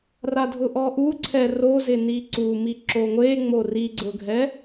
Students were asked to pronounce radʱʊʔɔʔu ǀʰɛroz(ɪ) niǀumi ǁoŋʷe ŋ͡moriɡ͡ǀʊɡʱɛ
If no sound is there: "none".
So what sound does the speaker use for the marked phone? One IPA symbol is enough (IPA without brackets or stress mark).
ɪ